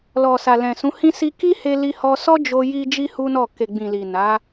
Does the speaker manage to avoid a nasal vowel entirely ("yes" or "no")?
no